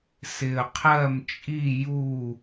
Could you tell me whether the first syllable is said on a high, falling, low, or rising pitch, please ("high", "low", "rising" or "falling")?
low